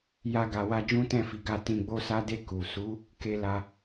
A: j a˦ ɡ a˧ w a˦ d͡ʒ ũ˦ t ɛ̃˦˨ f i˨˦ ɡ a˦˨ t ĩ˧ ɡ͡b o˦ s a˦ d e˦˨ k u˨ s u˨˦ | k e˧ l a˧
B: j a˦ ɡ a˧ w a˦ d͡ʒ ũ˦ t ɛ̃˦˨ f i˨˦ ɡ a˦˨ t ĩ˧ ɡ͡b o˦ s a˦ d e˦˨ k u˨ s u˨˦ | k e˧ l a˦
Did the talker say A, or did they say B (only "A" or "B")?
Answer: A